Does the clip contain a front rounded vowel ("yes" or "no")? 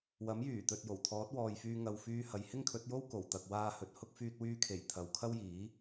yes